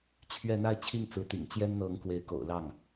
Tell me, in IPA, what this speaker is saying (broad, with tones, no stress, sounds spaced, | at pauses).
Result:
t͡ɕʰ ɥ ɛ˥˧ n̪ a˥˧ ɪ̯ t͡ɕʰ i˥˩ ŋ t͡s ɹ̩˧˥ t̪ ḭ˨˩ ŋ t͡ɕ j ɛ˥ n n̪ ɤ˧˥ ŋ k w e˧˥ ɪ̯ k o̰˨˩ ʊ̯ l ɑ˥˩ ŋ